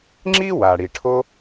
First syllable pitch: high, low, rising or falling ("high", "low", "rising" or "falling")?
high